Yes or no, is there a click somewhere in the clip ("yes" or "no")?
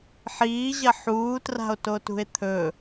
no